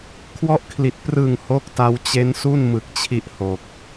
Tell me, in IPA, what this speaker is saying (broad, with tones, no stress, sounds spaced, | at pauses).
kʰ w ɔ˦˥ ʔ kʰ l i˨˩ t̚ p r ɯ˨˩ ŋ h o˦˥ k̚ t a˧ w t͡ɕ e˦˥ n s u˥˩ n m ɯ˨˩ k̚ t͡ɕʰ i˦˥ ʔ h o˨˩ k̚